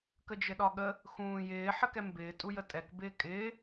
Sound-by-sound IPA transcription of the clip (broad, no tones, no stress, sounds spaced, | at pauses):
k ə d͡ʒ ɘ ɗ ɒ ɠ ə | x ũː j ɪː ħ ə k ɛ m b ɪː tʼ u j ə tʼ ɛ k b ɪː kʼ ɪː